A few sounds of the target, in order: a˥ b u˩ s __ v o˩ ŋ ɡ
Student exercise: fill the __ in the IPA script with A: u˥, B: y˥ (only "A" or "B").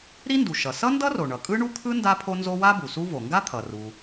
A